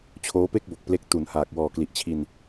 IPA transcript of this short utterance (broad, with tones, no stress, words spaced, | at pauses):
t͡ɕʰoː˦˥pe˥˩k̚bo˨˩k̚ple˦˥k̚ tu˩˦n haː˨˩k̚ wɔː˨˩kli˨˩ʔt͡ɕʰi˧n